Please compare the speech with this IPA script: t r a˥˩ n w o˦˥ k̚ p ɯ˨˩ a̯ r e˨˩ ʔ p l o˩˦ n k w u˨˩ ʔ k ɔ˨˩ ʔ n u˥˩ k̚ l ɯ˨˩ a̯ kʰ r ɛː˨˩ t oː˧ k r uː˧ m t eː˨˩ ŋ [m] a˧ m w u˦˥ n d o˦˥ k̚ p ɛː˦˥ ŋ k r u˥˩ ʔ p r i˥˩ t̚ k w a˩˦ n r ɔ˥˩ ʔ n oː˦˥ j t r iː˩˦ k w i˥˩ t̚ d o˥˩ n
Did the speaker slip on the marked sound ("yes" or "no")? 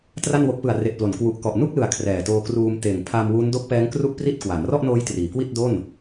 yes